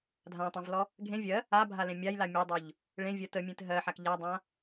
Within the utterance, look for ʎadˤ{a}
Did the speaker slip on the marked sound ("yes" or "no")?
yes